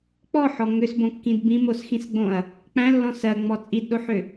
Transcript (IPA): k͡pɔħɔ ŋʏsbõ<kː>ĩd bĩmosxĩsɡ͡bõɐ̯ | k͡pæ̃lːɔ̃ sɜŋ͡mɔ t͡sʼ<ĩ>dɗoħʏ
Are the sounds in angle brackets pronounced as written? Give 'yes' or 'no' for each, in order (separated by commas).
yes, no